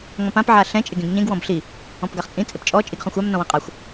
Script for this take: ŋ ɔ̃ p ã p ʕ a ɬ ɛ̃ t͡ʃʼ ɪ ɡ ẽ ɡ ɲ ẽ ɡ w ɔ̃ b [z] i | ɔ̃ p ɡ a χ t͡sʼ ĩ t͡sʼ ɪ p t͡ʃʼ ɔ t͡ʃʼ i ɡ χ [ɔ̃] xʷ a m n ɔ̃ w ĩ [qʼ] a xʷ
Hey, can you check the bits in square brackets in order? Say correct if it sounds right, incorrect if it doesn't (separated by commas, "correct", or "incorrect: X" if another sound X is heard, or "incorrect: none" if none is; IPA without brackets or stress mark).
incorrect: ɬ, correct, correct